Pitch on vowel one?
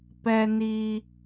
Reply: low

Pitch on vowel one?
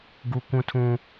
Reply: high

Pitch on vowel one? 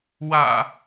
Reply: low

